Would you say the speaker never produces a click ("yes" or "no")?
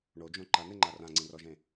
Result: no